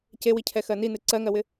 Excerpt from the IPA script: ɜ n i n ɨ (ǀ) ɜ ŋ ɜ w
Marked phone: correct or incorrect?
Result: correct